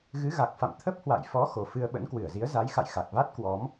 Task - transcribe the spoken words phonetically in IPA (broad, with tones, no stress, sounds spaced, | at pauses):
ɣ ɨ˨˦ ɣ a˨˩ k̚ f a̰˧˨ m t̪ʰ ə˦˥ p̚ h w a̰˧˨ j f ɔ˨˦ x o˨˩ f ɨ˧ ə̯ ɓ ə̰˧˥ n k w ɨ˧˩ ə̯ z i˨˦ ə̯ z a˨˦ j x a̰˧˨ j x a˨˩ k̚ v a˦˥ t̚ k w ɔ˨˦ m